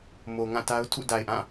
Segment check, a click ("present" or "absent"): absent